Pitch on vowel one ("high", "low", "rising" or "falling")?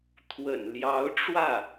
low